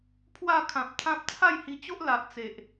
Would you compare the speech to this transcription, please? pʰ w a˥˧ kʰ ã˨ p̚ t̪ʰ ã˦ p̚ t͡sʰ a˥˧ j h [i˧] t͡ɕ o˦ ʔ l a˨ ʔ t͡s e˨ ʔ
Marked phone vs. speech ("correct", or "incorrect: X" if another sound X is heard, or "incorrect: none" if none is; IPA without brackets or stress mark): correct